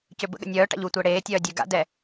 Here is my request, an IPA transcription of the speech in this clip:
c ø b ə̰ ɠ ə̰ nʲ œː ʈ a̰ ʎ u tʷ əː ɽ eː tʲ œː dʲ ø ɡ a̰ d ɛ

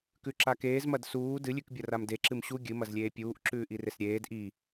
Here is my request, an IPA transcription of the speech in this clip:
k ʉ ǁ a k eː z m ɐ d s uː d ɨ lʲ ʉ k bʲ ɐ r a m d e ǁ ɨ m ɕ u ɡʲ ɨ m ɐ z lʲ eː pʲ uː ʔ ǁ ʉː ʔ i r e s ɾʲ eː d ʔ i

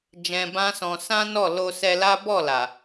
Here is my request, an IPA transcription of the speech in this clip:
d͡ʒ ɛ̃˧ b ã˦ s ɔ̃˧ s ã˦ n ɔ˦˨ l o˧ s ɛ˧ l a˦ b ɔ˦˨ l a˨

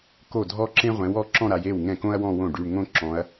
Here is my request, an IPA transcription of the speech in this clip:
k o˥˩ dʱ ɔ˥ ǁ ẽ˥ ʁʷ ɛ̃˨˥ w ɔ˩˧˩ ǁ ɔ̃˥˧ ɾ a˩˧ j e˥˩ w ŋ ɛ̃˥˩ k õ˥ ɐ̯ w ɔ̃˥˧ w õ˥˩ ɖ y˩˧˩ ɳ ŋ õ˥ ǁ ɔ̃˩˧ ɐ̯

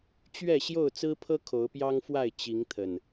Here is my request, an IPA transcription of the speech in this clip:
t͡ɕ ɥ ɛ˥˨ ɕ j o˥˨ ʊ̯ t͡s ɹ̩˦ pʰ ɤ˦ kʰ o˨˦ ʊ̯ p j ɑ˦ ŋ f w a˥˨ ɪ̯ t͡ɕ i˨˦ ŋ t̪ʰ ə˨˩ n

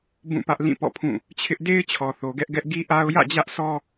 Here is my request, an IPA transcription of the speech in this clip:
b ũ˦˨ p ä˦ ʔ l ĩ˦˨ p ɔ̰˦˨ pʰ ũ˦˨ | t͡ɕʰ ɪ˦ ʔ d e˦ ɪ̯ t͡ɕʰ ɔ˨ θ o˨ ɡ ɛ˦ ʔ ɡ ɛ˦ ʔ ɡ i˦ ʔ a˦ ʊ̯ j ä̰˦˨ d͡ʑ ä˦ ʔ sʰ ɔ˦

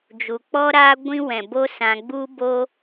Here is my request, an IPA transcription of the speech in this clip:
d͡ʒ u˨ k͡p ɔ˦ ɾ aː˦ ɡʷ ĩ˦ w ɛ̃˨ b o˦ s ã˧ ɡ͡b u˦ b oː˦

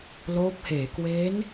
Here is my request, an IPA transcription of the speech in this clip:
l oː˦˥ p̚ h eː˩˦ k w eː˦˥ n

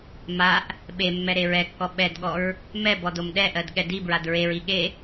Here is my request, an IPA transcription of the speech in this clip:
m a ʔ | ɓ e mː ɛ ɾ e ɹ ɛ kː ɔ ɓ ɛ d ɠ ɔ ɹ | m ɛ b ɔ d o m ɗ ɛ ʔ ɜ d ɠ ɛ d i b ɹ a d ɹ e ɹ i ɠ e

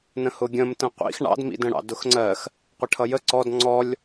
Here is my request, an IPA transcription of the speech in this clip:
n ə̃ h ʊ ɡʲ ə̃ m t ə̃ qʷ ḭ x ɳ ɑ̰ d m ḭ d ə̃ ɽ ɑ̰ d ʊ x ŋ͡ǀ ɜ x | qʷ ə ʈʰ ʌ j ə ǀ ɔ d ŋ͡ǀ ɔ lʲ

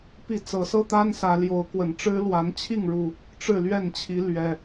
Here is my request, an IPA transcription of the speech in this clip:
p i˥˨ t͡s ɤ˨˦ s ɤ˦ t̪ a˦ n s ä˨˦ l j o˨˦ ʊ̯ k w ə˨˩ n ʈ͡ʂ ɻ̩˦ l w a˨˦ n t͡ɕʰ i˥˨ ŋ ɻ u˨˩ | ʈ͡ʂ ɻ̩˥˨ l ɥ ɛ˥˨ n t͡ɕʰ i˨˦ l ɥ ɛ˨˩

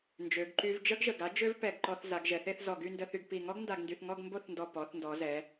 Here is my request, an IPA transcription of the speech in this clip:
n d͡ʒ ø˩˧ ɡ ǃ y˧ v d͡ʒ ə˥ ɡ ʒ ə˧˩ ɡ a˥ d͡ʒ ø˥ v p ɛ˧˩ ɡ ǃ ɔ˧ θ z a˩˧ ɡ ʒ ɛ˩˧ θ e˥˧ θ z ɔ˧˩ ɡ y˥˧ n d ə˧ θ y˧ ɡ p i˧˩ ŋ ɔ˥ ɡ n d a˧ ɡ n d y˧ θ ŋ ɔ˥˧ ɡ m b o˥˧ θ n d ɔ˧˩ p ɔ˩˧ θ n d ɔ˩˧ z ɛ˩˧

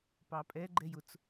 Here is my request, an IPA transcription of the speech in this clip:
p ɑ pʼ ɛ ɡ͡ǃ ɛ j ʊ t͡s

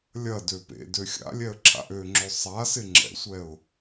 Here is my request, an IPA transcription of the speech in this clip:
lʲ ɐ d ø p ḛ d ø xʲ a̰ lʲ ɛ ə̯ ǁʰ a̰ ʔ ø ŋ͡ǁ ø sˤ a s ɪ ŋ͡ǁ ɛ̰ sʷ ɛ ʊ̯

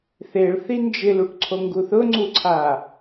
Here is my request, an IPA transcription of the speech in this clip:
θ e ɭ θ i n d͡ʒ ɪ l u ʈ ǀʰ o ŋ ɡ u θ ʊ ŋ͡ǀ u ǀʰ a

